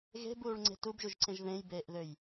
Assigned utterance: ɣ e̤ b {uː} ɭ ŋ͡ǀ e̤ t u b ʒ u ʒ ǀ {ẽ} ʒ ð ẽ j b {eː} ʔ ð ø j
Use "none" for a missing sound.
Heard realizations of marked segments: uː, ẽ, eː

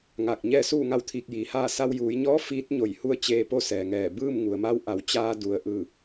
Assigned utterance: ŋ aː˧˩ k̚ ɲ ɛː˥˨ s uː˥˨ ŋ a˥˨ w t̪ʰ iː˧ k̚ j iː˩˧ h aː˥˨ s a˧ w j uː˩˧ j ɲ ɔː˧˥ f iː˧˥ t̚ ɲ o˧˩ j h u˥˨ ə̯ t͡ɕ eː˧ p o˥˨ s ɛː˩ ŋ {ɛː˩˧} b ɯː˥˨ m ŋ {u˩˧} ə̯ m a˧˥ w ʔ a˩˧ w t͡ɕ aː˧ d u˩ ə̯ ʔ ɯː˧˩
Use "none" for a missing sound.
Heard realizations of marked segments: ɛː˧˩, u˩

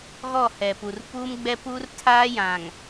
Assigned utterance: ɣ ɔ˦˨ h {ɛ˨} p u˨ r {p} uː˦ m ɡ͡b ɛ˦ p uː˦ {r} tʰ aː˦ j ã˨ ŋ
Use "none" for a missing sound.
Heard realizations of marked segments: ɛ˨, p, r

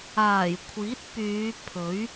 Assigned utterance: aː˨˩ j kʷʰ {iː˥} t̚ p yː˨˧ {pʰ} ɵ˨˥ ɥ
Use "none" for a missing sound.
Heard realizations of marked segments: iː˨˥, pʰ

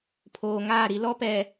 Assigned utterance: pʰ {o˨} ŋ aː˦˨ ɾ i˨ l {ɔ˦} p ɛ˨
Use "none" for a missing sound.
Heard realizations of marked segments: oː˨, ɔ˦

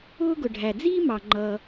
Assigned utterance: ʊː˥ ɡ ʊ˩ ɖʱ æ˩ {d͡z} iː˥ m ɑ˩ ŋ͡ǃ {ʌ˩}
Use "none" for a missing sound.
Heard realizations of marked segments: d͡z, ʌː˩

